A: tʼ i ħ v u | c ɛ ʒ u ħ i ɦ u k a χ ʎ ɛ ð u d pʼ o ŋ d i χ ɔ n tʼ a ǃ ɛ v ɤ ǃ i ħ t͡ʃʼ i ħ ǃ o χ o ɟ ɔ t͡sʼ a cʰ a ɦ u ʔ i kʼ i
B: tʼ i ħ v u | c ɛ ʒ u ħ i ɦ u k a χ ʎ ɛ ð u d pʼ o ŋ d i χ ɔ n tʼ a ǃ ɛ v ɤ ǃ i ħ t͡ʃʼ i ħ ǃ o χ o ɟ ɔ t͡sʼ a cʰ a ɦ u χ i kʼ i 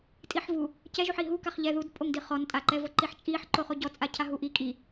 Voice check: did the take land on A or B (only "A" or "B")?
A